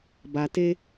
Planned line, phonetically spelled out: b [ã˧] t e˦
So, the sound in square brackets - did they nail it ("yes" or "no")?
no